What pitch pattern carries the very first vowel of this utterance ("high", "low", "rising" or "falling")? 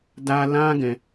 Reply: high